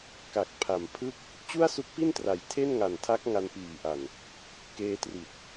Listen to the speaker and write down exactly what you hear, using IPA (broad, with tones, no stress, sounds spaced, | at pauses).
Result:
k a˨˩ k̚ pʰ a˨˩ m pʰ ɯ˥˩ k̚ | t͡ɕ u˥˩ a̯ s u˦˥ k̚ p i˥˩ n t r a˩˦ j tʰ e˥˩ n ŋ a˨˩ n tʰ a˦˥ k̚ ŋ a˧ n p iː˨˩ ʔ a˨˩ n | k eː˧ t r i˨˩ t̚